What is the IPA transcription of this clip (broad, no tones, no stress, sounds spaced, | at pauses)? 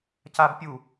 c a b pʲ u